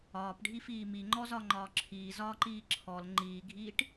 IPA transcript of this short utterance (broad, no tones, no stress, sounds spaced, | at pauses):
ɒː p ɖʱ i f iː m i ŋ͡ǃ ɔ z ɒ ŋ͡ǃ ɒː ǁʰ iː z ɒː ǃ iː ǁʰ ɔ l ŋ͡ǃ iː ɡʱ iː ʈ